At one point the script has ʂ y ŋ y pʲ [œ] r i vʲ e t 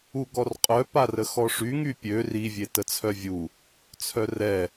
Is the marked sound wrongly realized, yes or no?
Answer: yes